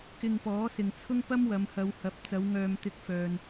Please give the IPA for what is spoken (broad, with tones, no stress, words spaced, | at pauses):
kɪ˧ŋpɔː˨˥sɪ˨ŋt͡sʰʊ˥ŋ pɐ˥mwɐ˨˧mhɐ˨˧whɐ˨˥p̚ t͡sɐ˨˧w ŋœː˧mt̪ɪ˧k̚fœː˨n